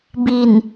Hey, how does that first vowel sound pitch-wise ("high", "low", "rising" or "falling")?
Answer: low